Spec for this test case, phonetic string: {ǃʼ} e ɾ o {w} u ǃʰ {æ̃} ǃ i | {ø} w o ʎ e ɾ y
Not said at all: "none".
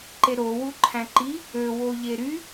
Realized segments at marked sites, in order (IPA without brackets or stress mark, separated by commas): ǃ, w, æ̃, ø